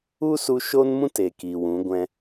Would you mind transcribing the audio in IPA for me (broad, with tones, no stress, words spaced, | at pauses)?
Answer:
u˦su˧ ʃo˦nmũ˦t e˨ki˨ wũ˨˦ɡʷɛ̃˧